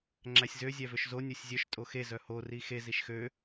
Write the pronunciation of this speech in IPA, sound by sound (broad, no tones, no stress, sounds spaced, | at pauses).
ŋ͡ǁ æ sʲ z ø zʲ æ v ø ʃ z o nʲ o sʲ zʲ œ ʃ tʼ o x e z œ h o r i x e z i ʃ x ø